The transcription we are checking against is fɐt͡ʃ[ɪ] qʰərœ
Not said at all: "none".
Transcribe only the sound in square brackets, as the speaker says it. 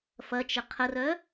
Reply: ɪ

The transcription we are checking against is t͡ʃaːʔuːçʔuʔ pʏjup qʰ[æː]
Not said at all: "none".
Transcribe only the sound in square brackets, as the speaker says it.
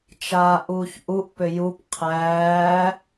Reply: æː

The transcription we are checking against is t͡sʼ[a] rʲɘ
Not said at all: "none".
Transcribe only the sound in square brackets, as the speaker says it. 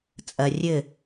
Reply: ɐ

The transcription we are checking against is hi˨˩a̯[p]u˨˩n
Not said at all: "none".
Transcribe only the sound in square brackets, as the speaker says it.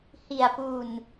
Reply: p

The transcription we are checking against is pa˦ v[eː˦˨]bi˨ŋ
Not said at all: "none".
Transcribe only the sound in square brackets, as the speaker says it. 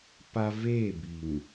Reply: eː˦˨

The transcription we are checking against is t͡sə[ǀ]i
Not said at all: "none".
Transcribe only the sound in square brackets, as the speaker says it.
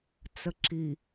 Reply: ǁ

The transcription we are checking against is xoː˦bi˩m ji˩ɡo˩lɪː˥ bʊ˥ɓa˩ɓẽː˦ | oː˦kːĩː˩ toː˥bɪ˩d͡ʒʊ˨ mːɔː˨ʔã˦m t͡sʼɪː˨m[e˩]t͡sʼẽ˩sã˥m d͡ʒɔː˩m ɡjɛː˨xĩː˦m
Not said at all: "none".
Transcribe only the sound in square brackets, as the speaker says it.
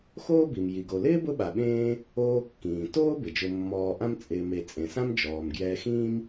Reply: e˨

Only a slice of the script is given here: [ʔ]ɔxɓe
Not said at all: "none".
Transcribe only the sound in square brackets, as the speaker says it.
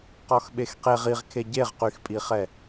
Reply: q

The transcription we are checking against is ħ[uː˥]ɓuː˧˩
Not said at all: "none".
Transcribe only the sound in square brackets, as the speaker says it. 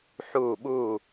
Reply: uː˧˩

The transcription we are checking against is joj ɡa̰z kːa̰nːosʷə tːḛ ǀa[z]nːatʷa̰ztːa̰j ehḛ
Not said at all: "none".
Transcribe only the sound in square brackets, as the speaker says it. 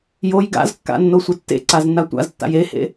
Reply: z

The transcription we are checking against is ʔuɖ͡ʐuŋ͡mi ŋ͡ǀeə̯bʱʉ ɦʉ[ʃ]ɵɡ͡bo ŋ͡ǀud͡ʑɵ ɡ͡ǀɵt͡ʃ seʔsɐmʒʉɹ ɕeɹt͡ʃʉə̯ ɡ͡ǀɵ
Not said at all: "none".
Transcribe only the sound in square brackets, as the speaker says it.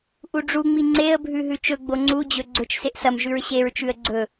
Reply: t͡ʃ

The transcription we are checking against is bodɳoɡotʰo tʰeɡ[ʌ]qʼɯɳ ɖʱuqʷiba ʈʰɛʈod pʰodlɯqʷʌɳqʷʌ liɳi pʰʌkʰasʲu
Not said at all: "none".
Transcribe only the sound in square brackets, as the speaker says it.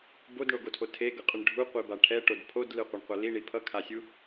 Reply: ʌ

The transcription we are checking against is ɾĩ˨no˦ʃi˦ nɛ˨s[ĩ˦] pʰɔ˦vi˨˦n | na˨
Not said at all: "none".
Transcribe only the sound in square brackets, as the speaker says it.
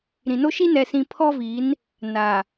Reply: ĩ˨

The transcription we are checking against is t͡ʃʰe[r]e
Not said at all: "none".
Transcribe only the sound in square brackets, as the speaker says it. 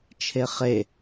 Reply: χ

